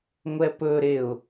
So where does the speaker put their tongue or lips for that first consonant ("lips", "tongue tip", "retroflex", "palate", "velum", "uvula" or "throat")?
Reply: velum